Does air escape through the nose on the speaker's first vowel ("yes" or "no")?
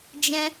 yes